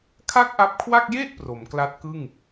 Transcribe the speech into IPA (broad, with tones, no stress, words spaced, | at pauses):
kʰa˥˩k̚ʔa˦˥p̚kʰwa˥˩k̚ je˥˩ʔ pro˩˦mkla˦˥t̚kɯ˥˩ŋ